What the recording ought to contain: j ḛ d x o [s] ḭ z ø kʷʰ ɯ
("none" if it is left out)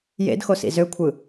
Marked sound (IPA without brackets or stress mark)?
s